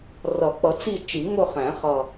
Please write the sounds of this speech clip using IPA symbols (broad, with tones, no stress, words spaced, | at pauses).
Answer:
rʌ˨˩˦k͡pʌ˨˩˦t͡si˦˨ t͡ʃi˨˩˦ŋʊ˦˨χæ̃˨˩˦ χʌ˨˩